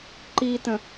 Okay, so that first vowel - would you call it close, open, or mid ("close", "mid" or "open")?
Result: close